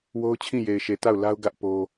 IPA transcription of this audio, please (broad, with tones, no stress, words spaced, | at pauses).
wo˦ʊ̯t͡ɕʰĩ˦˨je˨ɪ̯ʃe˨ ta˦˨ʊ̯ la˦ʊ̯ɡä˦ʔ po˦